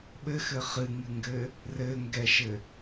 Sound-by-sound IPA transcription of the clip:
ɓɘxɘ χɨŋɨŋɡɘ | rɘŋɡɛʃɘ

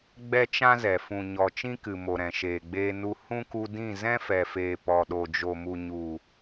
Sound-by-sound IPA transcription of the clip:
ɡ͡bɛ˦t͡ʃã˦zɛ˨ fũ˨ɲɔ˨ t͡ʃĩ˦kɨ˨mo˨ ɾɛ̃˨ʃeː˨ɡ͡beː˧ nu˧ hũ˦ku˧dĩ˦˨ zɛ̃˦fɛ˨feː˨ pɔ˨ɗo˨d͡ʒo˨mu˨ ɲu˨

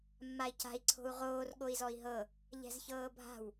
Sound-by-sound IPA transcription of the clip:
mːai̯ca̤i̯ ǀʰo̤u̯ʁoːr ɠoi̯zɔi̯ɦɤ | ʎɛ̤zçɤːbʱa̤w

